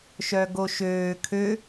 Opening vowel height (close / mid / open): mid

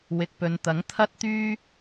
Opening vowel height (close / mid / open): close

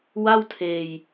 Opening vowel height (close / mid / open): open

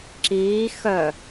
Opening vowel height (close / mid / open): close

